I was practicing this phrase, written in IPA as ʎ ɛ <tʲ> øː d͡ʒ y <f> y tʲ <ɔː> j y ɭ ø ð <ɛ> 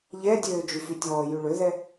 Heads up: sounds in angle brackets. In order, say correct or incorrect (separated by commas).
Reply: incorrect, correct, correct, correct